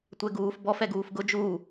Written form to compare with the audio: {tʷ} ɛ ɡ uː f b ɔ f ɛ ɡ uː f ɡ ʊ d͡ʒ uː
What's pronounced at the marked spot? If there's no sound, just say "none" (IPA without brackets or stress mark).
tʷ